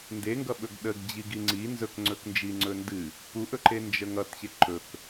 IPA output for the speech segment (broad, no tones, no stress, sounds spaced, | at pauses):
n d e ŋ ɡ ʌ ɓ ɵ ɡ ɗ ə ɡ d͡ʑ i ɡ i ŋ͡ǀ i n z ɵ k ŋ͡ǀ ɵ k n d͡ʒ i ŋ͡ǀ ɵ n d ɨ | p u ʔ ɵ ǃ e n d͡ʒ ə ŋ ʌ t ɕ e ǃ ɵ k